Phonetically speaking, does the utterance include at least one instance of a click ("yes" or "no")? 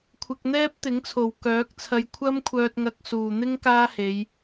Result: no